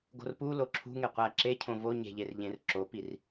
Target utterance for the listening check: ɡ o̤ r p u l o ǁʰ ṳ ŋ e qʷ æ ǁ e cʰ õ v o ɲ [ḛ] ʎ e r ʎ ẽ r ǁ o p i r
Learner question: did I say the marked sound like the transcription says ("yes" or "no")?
no